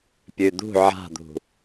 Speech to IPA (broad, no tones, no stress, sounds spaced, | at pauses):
pʲ ʉ d̪ ṳ ʕ a̤ d̪ ṳ